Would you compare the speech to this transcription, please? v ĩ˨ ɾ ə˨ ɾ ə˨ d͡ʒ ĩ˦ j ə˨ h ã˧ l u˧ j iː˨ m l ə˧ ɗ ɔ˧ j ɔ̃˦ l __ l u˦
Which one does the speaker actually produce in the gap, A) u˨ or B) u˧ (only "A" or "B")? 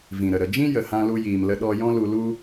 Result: B